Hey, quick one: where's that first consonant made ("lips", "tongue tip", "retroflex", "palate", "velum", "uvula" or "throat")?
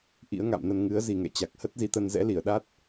throat